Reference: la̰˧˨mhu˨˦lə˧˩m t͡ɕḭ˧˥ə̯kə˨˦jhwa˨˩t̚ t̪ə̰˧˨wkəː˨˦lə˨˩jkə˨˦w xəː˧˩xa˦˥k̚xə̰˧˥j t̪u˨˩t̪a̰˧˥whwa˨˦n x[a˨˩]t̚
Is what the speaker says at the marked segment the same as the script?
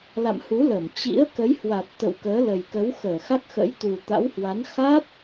no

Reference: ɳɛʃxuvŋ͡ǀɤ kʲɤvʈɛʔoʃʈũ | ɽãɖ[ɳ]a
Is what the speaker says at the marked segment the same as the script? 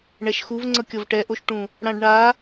yes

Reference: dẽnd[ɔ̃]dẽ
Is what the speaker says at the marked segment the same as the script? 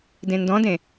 yes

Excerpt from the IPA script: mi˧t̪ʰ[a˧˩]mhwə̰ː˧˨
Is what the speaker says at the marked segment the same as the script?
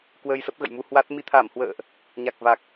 yes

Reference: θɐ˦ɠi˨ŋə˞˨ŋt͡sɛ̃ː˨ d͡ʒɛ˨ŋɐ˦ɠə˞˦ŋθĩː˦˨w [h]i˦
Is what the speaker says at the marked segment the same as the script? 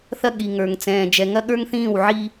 no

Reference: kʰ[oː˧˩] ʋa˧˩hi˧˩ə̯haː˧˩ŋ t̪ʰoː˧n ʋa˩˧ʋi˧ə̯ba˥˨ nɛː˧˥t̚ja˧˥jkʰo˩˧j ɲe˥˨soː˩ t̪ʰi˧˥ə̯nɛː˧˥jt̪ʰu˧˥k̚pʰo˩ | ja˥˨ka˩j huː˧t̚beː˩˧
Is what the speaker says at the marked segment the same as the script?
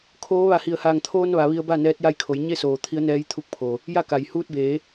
no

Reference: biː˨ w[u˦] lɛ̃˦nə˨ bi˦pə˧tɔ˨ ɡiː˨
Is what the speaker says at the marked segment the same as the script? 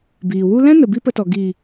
yes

